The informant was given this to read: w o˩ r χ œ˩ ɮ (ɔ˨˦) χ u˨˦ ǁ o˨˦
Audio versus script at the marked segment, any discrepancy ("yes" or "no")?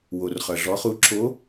no